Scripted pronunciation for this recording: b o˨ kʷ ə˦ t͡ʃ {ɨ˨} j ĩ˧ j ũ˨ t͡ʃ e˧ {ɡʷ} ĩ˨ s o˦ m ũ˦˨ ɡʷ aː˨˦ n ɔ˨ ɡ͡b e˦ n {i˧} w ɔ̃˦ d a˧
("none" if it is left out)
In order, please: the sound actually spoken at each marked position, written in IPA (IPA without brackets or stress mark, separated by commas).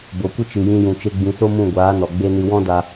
ɨ˨, ɡ͡b, ɨ˧